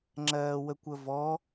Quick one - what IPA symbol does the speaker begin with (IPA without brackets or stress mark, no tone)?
ŋ͡ǁ